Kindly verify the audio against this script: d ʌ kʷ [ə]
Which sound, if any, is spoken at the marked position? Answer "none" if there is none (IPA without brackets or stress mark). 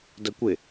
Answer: ɪ